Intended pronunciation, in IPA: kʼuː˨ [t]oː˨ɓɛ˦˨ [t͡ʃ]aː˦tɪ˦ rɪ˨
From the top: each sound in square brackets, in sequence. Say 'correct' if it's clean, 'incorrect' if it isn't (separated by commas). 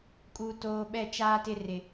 correct, correct